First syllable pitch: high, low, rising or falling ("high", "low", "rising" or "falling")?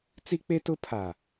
high